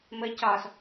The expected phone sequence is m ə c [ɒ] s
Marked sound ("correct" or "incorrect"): correct